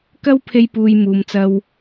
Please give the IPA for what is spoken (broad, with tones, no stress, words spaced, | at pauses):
kɐ˥wpʰe˧jpuː˨j muː˨mt͡sɐ˧w